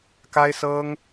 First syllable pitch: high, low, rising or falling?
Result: high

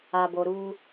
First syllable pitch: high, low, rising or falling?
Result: low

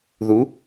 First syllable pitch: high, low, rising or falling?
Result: rising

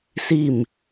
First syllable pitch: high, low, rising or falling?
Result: falling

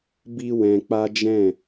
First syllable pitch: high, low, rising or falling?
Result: high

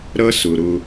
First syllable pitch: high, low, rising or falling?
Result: high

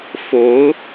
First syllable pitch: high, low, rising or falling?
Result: rising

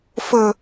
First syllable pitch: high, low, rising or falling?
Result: low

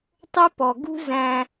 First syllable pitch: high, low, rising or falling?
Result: high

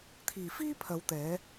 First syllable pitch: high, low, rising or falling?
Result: low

